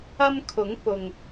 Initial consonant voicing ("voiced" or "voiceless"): voiced